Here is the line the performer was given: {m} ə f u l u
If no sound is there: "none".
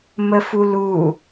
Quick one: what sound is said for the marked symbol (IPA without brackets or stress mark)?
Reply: m